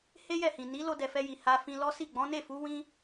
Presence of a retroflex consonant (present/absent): absent